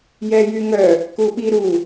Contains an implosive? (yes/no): yes